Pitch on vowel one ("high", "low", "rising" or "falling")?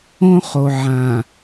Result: high